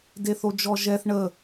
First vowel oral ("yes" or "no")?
yes